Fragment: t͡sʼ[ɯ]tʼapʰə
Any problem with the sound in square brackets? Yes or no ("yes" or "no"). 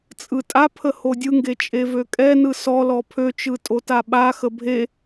no